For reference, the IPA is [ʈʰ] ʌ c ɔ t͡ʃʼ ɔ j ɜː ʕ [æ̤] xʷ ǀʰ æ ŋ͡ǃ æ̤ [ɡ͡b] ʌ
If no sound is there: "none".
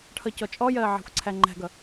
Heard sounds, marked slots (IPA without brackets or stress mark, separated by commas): ʈʰ, æ̤, ɡ